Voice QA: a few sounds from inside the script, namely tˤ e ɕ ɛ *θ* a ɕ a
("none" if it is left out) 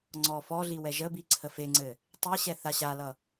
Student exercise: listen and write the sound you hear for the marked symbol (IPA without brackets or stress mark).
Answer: θ